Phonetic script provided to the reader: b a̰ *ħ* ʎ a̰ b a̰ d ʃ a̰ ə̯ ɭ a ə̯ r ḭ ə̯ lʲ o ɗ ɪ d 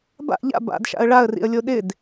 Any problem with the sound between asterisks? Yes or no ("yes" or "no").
yes